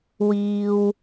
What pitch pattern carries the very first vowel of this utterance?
low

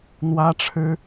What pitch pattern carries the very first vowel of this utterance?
high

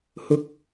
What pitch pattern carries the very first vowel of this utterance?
high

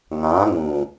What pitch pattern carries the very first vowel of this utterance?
rising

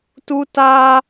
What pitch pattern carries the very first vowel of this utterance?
high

